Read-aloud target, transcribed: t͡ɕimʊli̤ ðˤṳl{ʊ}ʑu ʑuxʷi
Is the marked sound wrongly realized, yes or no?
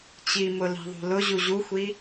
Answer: no